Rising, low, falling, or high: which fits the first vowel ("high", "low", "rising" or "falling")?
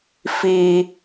high